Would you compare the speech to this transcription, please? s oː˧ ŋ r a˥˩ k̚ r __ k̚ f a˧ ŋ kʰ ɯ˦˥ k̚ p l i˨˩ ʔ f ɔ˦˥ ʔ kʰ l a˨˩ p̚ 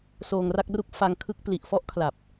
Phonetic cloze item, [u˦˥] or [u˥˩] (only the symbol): u˥˩